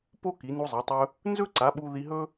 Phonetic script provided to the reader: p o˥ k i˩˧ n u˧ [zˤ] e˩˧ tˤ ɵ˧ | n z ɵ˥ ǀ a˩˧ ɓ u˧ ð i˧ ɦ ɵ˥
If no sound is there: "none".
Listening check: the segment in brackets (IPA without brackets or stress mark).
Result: zˤ